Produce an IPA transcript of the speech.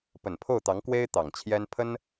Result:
p ə˨˩ n pʰ o˥˩ ʊ̯ t̪ ɑ˧˥ ŋ k w e˥ ɪ̯ t̪ ɑ˨˩ ŋ t͡ɕʰ j ɛ˥ n pʰ ə˥ n

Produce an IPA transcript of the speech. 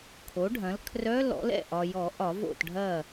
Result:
kʰ o˩˥ ɖʱ ɐ̃˩˥ l kʰ r œ˧˥˧ l ɔ̰˩˥ l ɛ̰˥˩ ʔ ɒ˨ j ɔ˨˩˦ ʔ ɒ˨˩˦ v o̰˥˩ t ɖʱ ɐ˥˩

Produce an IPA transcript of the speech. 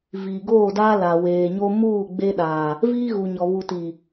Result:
v iː˨ ɡ oː˦˨ d aː˦ l a˨ w eː˨ ɲ o˦ m uː˦˨ ɡ͡b e˦ ɗ aː˨ | v iː˦ ɣ u˨ ɲ ɔ˨ β u˨ t i˨

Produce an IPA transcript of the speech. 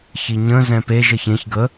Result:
ç i ɲ ə̃ z ɛ̃ p e ʒ ə ç ẽ ç ɡ ə

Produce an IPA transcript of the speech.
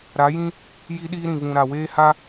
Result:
ɾ a˨˦ j ĩ˦ | j i˦ ɗ iː˦ ɾ ĩ˨ v ũ˨ ɾ a˨ w eː˦ h a˦

